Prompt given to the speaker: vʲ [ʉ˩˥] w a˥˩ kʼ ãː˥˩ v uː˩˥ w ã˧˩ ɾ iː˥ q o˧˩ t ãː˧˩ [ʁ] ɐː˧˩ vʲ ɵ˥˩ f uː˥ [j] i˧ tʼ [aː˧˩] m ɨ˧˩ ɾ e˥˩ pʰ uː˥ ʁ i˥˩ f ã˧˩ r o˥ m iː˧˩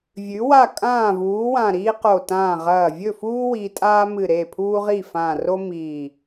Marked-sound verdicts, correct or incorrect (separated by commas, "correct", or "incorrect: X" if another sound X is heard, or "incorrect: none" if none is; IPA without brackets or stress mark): correct, correct, incorrect: w, incorrect: aː˥